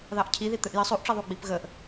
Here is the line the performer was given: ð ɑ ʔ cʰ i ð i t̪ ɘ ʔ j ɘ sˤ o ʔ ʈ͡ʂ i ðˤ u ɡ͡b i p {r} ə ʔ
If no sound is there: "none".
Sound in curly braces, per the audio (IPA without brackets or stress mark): ɣ